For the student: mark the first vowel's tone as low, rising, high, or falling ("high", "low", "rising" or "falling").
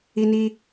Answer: high